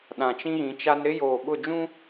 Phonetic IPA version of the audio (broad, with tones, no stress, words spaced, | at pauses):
ɗã˨t͡ʃĩ˦ɣĩ˨˦t͡ʃa˦n ɾɪ˦ joː˨ɓʊ˦˨d͡ʒũ˦